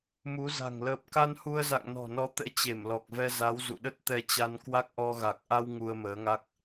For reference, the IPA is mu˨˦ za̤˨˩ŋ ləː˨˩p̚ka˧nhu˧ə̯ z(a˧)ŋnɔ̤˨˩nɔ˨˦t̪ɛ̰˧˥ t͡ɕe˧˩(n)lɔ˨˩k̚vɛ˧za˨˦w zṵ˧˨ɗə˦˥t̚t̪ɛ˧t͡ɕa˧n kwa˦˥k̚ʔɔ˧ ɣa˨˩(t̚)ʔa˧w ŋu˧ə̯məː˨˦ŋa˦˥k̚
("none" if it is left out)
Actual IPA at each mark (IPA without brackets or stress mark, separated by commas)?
a̰˧˨, m, k̚